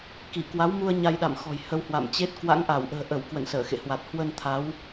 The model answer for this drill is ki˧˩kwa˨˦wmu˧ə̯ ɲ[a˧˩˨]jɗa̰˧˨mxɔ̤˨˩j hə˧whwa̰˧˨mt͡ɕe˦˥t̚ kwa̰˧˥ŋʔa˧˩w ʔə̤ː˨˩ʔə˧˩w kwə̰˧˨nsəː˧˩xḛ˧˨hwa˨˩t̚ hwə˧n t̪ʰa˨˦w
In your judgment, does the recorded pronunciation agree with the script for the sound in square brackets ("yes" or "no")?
no